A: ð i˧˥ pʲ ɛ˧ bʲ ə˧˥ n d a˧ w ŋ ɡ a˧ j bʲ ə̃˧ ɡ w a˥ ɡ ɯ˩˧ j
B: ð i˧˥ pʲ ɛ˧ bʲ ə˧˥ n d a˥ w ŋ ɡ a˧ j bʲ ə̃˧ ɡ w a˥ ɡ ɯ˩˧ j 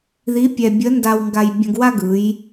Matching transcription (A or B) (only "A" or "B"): A